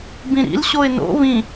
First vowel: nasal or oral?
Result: nasal